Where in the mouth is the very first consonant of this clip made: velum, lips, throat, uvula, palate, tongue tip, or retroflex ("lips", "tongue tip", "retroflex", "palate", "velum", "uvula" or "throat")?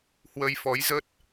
throat